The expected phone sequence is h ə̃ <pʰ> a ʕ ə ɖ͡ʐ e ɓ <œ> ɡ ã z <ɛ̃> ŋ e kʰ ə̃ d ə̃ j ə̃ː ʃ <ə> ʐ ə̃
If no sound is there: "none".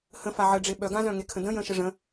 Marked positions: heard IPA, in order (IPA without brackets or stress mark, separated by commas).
f, œ, œ̃, ə